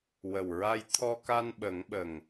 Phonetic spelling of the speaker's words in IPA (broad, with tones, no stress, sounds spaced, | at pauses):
w ə˨˩ w ɹ a˧ j t̪ʰ ɔ˧ k a˧ n ɓ ə˨˩˦ ŋ ɓ ə˨˩ ŋ